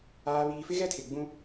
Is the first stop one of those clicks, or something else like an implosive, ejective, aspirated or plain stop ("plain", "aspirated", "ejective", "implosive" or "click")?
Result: aspirated